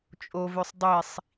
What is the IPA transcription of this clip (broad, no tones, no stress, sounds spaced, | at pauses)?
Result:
t͡ʃʼ o v ø sˤ dˤ i sˤ